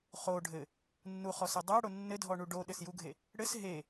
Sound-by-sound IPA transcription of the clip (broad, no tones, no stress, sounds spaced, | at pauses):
χ o ɖʱ ɘ | nː u χ ɔ s ɘ dˤ a ɽ o nː ɘ dʱ ɔ ɳ u ɖ o ɗ ɘ s j u ɡʱ e | ɽ ɘ s ɦ e